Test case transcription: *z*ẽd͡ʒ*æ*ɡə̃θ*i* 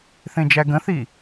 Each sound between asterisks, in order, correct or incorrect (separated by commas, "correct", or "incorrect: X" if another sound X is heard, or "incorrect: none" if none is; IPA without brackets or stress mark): incorrect: θ, correct, correct